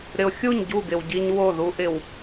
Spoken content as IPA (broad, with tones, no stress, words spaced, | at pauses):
ɾɪ˨ʊ̯xʲu˦˨ɲ ɟu˦˨ɡɪ˨w ɟi˦ɲwo˦˨ ðu˦ʔɪ˨w